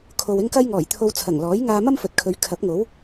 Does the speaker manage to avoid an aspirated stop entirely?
no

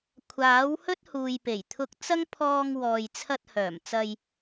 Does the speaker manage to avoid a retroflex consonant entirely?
yes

